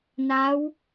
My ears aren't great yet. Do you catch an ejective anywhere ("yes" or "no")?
no